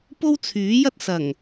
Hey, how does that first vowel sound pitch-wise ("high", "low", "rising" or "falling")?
high